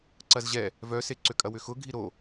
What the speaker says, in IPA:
ǀɐzʑɛ | vœse ǀʏkʼɐwʏxʊ ɡʱiɾo

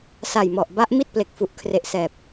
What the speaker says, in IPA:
sa˨˩jmɔ˨˩ʔba˦˥ʔ mi˥˩t̚ple˨˩k̚fu˨˩ʔkʰre˨˩ʔ sɛː˨˩p̚

